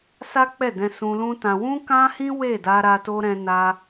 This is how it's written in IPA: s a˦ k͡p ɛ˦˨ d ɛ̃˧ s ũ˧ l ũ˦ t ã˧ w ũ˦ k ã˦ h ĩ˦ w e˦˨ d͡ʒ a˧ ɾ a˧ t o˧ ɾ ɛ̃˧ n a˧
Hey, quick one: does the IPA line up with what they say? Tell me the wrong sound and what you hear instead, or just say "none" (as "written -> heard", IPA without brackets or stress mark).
d͡ʒ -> d